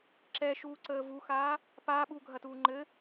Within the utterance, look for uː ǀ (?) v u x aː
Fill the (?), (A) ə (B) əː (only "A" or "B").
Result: B